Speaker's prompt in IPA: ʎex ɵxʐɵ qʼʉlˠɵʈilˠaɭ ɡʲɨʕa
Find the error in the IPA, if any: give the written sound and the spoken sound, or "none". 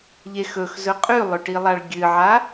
ʐ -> z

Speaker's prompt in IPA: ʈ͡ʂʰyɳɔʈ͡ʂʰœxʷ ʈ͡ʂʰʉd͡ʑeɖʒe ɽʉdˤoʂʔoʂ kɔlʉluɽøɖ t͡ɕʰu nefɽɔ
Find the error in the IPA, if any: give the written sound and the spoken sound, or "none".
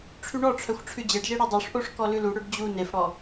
t͡ɕʰ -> d͡ʑ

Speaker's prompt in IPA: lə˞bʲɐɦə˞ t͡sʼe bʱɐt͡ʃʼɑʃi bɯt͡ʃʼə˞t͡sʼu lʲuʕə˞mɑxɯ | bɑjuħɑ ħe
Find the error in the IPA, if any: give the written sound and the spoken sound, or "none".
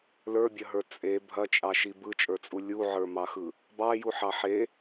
none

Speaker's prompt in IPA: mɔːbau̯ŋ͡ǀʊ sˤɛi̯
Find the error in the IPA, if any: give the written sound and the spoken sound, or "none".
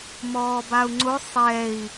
none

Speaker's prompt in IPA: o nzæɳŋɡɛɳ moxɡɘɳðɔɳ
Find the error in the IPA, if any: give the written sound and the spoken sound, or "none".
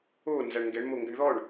x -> ŋ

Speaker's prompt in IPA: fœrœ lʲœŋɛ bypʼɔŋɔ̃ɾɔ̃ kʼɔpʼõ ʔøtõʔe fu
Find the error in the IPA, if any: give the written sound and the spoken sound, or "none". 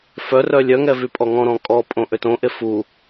b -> v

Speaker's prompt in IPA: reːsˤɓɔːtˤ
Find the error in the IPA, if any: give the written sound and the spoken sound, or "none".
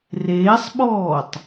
none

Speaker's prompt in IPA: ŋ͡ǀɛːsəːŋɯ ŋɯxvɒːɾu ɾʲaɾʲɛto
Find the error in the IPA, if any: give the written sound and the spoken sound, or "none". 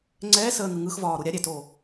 none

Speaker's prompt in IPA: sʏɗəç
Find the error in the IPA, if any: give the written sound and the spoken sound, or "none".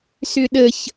none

